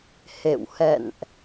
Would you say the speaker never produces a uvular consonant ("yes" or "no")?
yes